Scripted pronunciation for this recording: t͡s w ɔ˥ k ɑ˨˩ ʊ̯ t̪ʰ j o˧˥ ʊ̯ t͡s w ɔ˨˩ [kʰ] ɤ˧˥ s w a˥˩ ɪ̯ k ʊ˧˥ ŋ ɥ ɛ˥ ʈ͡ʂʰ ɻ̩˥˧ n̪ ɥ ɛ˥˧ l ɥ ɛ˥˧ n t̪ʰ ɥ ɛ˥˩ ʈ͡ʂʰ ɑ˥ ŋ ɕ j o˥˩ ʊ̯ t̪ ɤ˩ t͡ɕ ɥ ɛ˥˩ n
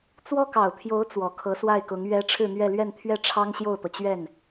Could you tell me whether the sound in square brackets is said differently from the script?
no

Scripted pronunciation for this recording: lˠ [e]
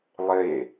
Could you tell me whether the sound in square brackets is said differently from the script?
no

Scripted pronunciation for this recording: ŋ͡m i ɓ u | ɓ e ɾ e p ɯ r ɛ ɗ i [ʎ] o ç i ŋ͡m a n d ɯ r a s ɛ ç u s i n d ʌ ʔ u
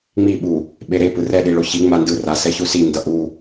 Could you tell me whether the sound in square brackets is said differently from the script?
yes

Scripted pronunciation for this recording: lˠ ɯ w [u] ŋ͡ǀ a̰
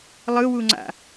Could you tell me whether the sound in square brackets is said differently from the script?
no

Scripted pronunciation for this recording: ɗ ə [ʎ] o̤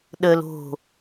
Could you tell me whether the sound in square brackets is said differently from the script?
yes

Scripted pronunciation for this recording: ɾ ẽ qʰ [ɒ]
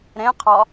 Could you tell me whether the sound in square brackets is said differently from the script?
no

